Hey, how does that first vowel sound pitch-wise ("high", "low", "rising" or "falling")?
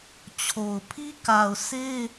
low